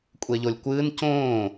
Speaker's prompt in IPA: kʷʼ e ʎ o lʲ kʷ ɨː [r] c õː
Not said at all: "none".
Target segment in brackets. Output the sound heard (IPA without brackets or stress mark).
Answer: n